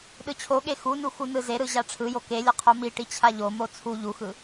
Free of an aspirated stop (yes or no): no